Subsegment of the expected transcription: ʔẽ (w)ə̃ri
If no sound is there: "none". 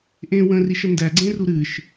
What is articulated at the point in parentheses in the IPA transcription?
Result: w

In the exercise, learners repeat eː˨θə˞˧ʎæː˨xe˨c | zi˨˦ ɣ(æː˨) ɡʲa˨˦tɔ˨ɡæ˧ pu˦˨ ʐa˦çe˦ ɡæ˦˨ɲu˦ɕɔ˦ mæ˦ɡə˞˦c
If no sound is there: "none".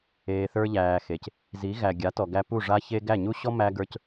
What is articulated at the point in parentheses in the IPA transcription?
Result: æ˨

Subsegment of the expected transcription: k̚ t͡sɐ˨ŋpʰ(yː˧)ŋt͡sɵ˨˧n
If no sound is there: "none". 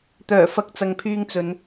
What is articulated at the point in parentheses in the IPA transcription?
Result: yː˧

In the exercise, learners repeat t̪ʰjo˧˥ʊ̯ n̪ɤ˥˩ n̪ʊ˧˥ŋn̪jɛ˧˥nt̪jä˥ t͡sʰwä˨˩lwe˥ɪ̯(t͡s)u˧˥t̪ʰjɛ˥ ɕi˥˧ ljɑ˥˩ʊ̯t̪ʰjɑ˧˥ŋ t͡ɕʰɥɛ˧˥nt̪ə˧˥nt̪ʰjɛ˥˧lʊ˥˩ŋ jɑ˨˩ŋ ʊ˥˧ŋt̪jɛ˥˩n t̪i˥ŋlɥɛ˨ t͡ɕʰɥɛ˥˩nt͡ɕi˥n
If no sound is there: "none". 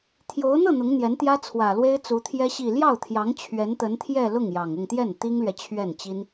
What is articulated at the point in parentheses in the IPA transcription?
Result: t͡s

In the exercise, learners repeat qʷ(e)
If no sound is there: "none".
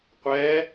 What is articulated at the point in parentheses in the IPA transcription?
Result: ɛ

